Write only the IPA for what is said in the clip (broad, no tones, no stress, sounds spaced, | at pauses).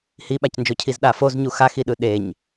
h i ɓ a c n d͡ʒ o cʰ i z ɗ a f o z ɲ u x a x i ɗ ɯ ɗ e ɲ